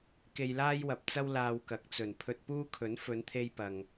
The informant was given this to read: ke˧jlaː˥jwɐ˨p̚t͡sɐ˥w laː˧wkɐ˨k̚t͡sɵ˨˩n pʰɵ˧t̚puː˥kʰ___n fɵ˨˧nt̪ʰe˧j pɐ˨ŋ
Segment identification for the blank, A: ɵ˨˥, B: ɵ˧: A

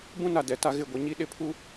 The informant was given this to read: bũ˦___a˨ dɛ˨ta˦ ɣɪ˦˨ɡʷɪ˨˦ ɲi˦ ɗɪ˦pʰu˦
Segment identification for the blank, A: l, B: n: B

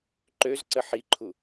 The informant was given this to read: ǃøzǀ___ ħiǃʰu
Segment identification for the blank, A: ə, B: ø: A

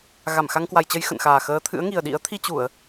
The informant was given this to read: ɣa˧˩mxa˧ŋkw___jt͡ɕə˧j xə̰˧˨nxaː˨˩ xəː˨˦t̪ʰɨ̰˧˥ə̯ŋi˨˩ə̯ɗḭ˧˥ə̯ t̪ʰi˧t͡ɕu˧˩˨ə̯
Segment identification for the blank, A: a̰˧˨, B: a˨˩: B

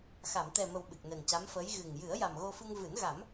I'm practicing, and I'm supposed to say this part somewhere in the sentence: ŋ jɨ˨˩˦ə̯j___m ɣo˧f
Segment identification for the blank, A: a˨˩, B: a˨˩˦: A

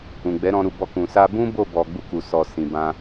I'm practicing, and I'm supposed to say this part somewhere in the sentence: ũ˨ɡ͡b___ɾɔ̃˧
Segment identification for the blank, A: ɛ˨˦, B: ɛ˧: A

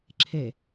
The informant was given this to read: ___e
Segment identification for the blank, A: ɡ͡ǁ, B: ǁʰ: B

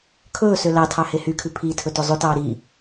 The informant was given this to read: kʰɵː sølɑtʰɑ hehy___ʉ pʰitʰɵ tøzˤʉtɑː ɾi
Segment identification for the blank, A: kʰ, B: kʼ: A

